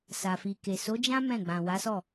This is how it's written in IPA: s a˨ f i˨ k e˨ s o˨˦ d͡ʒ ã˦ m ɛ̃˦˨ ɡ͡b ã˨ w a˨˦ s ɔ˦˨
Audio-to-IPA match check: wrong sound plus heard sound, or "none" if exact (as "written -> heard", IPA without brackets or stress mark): none